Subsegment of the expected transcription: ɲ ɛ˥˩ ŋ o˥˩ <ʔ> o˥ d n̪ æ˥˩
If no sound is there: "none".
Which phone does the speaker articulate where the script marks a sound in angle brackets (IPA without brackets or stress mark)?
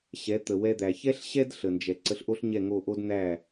ʔ